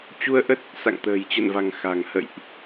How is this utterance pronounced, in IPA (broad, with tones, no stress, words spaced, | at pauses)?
t͡ɕu˧ə̯ʔə˦˥t̚ | sa̰˧˨ŋt̪ə̤ː˨˩jt͡ɕə̰˧˨nva̤˨˩ŋ xa̤˨˩ŋhə̰˧˨jʔ